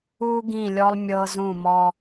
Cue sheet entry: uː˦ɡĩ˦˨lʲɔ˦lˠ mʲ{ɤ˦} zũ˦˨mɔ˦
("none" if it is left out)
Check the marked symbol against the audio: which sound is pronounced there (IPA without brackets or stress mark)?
ɤ˦